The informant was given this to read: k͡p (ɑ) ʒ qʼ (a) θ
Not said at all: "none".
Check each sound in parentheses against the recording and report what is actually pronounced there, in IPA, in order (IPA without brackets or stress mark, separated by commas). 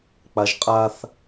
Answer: a, a